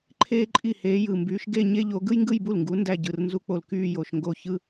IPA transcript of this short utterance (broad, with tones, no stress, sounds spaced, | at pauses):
ǃʰ eː˥ ǃʼ i˥˩ h eː˨˦ j ɯ˨˩ m b yː˨˦ ʃ ɡ e˥˧ ɲ e˥ ʎ o˨˦ ɡ ɯ˥ j ŋ ɡ ɯ˥˧ j b u˥˩ l ŋ ɡ u˨˦ n d æ˥˧ ɟ ɯ˨˩ r n z u˥˧ k͡p o˥˩ l k yː˥˧ j o˨˩ ʃ ŋ ɡ o˥˩ ç ɯ˥